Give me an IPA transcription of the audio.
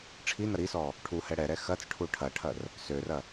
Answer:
ʈ͡ʂʰ i n ɐ ɾ i s ɔ | ʈʰ u h ɛ ɽ ɛ ɾ ɛ x ɐ t͡s ʈʰ u ʈʰ ɐ ʈʰ ɐ r | s ø r ɐ

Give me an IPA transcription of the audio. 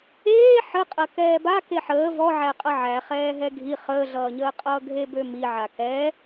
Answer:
eː ħ ə qʼ ɐ k ɛː b a k e ħ əː v ɔ ʕ æ qʼ ʌ ʕ æ χ ɛː ɦ ɛ ɡʱ i χ əː ɮ ʌː ɲ əː qʼ ʌː ɡʱ e b ø m i ʕ a k ɛ

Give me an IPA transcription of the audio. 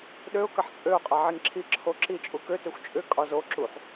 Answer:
ɗ ø ʊ̯ k ɐ ħ t͡sʼ ø ʊ̯ qʼ a ʕ i ŋ ǁʰ i ǁʰ o ǁ i t͡ʃʼ u k ø t ø xʷ t͡ʃʼ ʏ kʼ ɒ z o ǁ u ħ

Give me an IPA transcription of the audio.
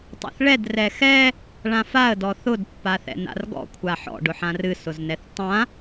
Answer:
tˤ a̰ θ ɭ ɛ d r ɛ x ɛ | ɭ ã f a ə̯ d ɔ θ ʊ d pː a θ ɛ̰ n a̰ r ɡ ɔ̰ kʷʰ a ħ ɔ̰ ɖ ʊ ħ ã r ɨ s ʊ z n ɛ θ tˤ ã

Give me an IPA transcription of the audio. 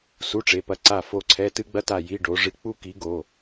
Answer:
s u˧˥˧ ʈ͡ʂ e˩˧˩ p ɐ˦˨ ǀ a˦˨ f o˦˨ ǀʰ ɛ˧˥˧ t ɨ˥ ɡ͡b ɐ˥ t a˦˨ j i˧˥˧ ɖ o˨˦ ʐ ɨ˧˥˧ k͡p u˥ k i˨˦ ɡ o˩˧˩

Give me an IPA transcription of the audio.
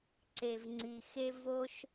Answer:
ǀ e˩ v ŋ͡ǀ i˩ x e˧ v o˧ ʃ

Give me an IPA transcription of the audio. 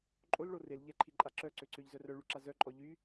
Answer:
ǃʼ o l ɭ o r e l ʎ ɛ ǃʰ i ǃʼ a ǁ œ ǀ ø ǀ ø ʎ z œ r œ ɭ y ǁ a z œ ǃʼ ɔ ʎ y

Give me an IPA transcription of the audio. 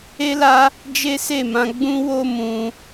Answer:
e˦ l a˦ | d͡ʒ e˦ s e˦˨ m ã˧ ɡ͡b ũ˦ w o˦ m ũ˧

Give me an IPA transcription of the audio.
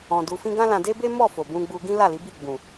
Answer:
ɔ̃˧ d u˧ f ĩ˦ ɡ ã˦ l ã˧ d e˦ b e˦ m ɔ˦˨ f o˨ b ũ˧ ɡ͡b u˧ ɡ ĩ˦ l a˦˨ l i˨˦ b i˦˨ ɡ͡b ũ˨

